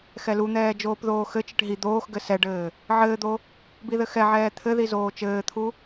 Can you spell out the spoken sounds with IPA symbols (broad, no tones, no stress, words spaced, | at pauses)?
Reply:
xɛlun̪ɛː d͡ʒoːpðoːxɘt͡ʃɘʈ ɦi d̪oːxɡɘ sɛɖɘː | ʕɘːd̪o | biðɘxɛʕɛː t̪ʰɘði zoːt͡ʃɘːt̪ʰu